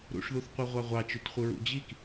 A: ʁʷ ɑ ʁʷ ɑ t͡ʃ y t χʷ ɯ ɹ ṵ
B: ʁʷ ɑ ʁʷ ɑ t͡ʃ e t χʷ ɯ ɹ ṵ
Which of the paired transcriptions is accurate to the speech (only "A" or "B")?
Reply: A